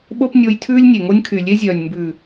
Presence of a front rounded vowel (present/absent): present